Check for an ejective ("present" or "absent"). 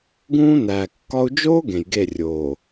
absent